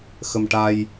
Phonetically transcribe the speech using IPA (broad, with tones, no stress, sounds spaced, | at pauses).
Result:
x ə˧ m ʈ a˧ j